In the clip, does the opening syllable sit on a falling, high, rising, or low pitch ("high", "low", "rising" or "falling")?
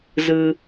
high